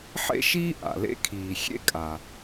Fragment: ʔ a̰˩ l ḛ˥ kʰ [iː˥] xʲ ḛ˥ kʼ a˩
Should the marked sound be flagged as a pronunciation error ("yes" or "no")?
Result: yes